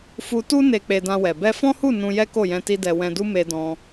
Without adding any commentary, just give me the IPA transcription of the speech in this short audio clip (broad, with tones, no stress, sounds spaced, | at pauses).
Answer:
f u˧ t u˦ n e˧ k͡p e˧ d ã˧ w ɛ˨ b ɛ˧ f ɔ̃˦ h u˦˨ n ũ˧ j ɛ˦ k o˦˨ j ɛ̃˧ t i˦ d ɛ˧ w ɛ̃˧ d u˦ m e˧ d ɔ̃˧